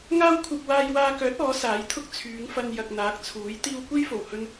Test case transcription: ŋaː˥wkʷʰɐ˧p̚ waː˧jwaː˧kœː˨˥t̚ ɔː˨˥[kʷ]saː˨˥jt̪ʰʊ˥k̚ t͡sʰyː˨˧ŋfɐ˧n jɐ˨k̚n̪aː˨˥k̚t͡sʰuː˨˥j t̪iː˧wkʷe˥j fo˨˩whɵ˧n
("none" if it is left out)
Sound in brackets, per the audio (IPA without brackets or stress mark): none